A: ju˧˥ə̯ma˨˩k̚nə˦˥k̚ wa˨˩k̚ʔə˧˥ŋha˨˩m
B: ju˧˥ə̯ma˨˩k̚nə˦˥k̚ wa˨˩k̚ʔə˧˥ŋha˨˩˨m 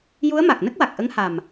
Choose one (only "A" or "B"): A